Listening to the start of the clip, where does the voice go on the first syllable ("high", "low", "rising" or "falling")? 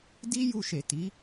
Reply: high